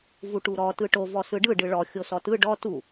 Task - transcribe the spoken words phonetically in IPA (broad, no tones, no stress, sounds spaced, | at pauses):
v u ʈ u ɾ ɔ t ɯ ʈ o v ɔ s ɯ ɖ ɯ ɖ ɯ ɭ ɔ xʲ o s ɔ t ɯ ɖ ɔ t u